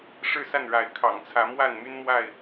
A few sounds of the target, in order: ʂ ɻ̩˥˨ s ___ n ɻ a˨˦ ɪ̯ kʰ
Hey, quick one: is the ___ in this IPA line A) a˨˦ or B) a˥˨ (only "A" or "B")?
B